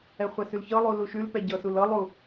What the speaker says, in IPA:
ɛ χʷ ɛ s ʉ l ç ɤ lˠ u l u ʃ ʉ l p ɛ ɟ ɤ s u l ɤ lˠ u

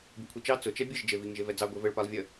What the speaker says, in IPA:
bʲ ʊ kʷʰ i t͡ʃ ɑ t͡s ʊ t͡ʃ ɛ bʲ ɘ ʒ d͡ʒ e v i ŋ ʒ e v ɛ d͡z ɑ ɡʷ e v ɘ ɭ p a lˠ vʲ ə

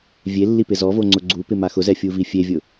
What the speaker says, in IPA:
vʲ e lː i p ɪ z ɔ v o ŋ͡ǀ ʊ ɡ͡ǀ u p ɪ m a x ʊ z ɛ fʲ u v i fʲ e vʲ ʊ

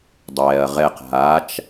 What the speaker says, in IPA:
dˤ ɛː ɐ̯ ʁ ɛ q ɦ a t͡ʃ

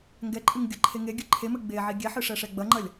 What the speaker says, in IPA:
ŋ ɡ ɛ ǃʼ ɨ ŋ ɡʲ ɐ ǃʰ e ŋ e ɡʲ ɨ ǃʰ e m ɘ ɡ͡b e ʕ i ɡʲ ɛ ħ ɨ ʂ ɛ ʂ ɛ ɡ͡b ɐ ŋ͡ǃ ɐ lʲ

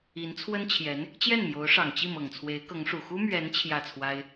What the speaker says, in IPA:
i˧˥ n t͡sʰ w ə˥ n t͡ɕʰ j ɛ˧˥ n | t͡ɕ j ɛ˥˩ n m j o˧˥ ʊ̯ ʂ ɑ˨˩ ŋ t͡ɕ i˥˩ m ɤ˨˩ ŋ t͡sʰ w e˧˥ ɪ̯ k ɤ˧˥ ŋ ʂ u˨˩ x u˥ m ɥ ɛ˧˥ n t͡ɕʰ j ä˥˩ t͡sʰ w a˥ ɪ̯

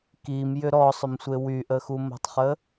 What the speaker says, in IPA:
k i m j ʏ ɾ ɔ sˤ ʏ m sʷ e w y ʔ ə x u m ə̤ tˤ χ ə

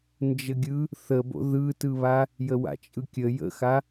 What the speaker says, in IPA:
n d͡ʒ ə ɡʲ ɯ | θ ə b o̰ ð ɯ t ɯ β a | j ə w a̰ t͡ʃʼ ɯ kʲ ə j ə̰ x a

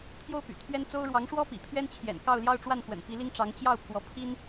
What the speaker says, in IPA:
t̪ʰ j o˥ ʊ̯ p y̰˨˩ t̪ʰ ɥ ɛ˥ n t͡s o˥ ʊ̯ ɻ w ɑ˧˥ ŋ ʂ w ɔ˥ p ḭ˨˩ pʰ ɥ ɛ˥ n t͡ɕʰ j ɛ̰˨˩ n k ɑ˥˧ ʊ̯ l j ɑ˥˧ ʊ̯ ʈ͡ʂ w a˥˩ n x w ə̰˨˩ n p i˧˥ l i˥ ŋ ʈ͡ʂ ɑ˧˥ ŋ t͡ɕ j ɑ˥˩ ʊ̯ pʰ w ɔ˧˥ pʰ i˥ n

